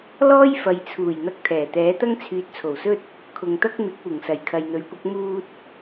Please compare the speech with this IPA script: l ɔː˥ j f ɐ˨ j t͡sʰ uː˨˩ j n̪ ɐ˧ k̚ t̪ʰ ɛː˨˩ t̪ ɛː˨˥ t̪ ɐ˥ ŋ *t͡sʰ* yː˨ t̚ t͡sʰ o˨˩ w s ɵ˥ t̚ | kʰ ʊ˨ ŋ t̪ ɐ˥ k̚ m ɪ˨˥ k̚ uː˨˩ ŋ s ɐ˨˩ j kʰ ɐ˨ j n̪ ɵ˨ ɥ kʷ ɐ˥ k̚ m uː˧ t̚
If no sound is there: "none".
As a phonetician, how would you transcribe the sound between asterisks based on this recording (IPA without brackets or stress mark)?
t͡sʰ